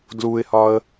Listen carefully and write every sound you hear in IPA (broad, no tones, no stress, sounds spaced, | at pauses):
d l u ɪ̯ h ɒ ə̯